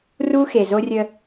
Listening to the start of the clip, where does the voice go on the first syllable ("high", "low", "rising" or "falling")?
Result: high